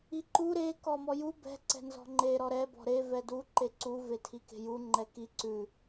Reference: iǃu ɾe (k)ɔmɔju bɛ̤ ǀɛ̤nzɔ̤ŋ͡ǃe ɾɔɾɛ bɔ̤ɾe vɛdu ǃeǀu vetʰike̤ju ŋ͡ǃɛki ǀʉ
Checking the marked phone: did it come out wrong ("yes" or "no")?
no